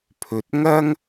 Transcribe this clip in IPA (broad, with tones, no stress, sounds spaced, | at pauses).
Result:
pʰ ɵ˨ t̚ ŋ ɐ˥ ŋ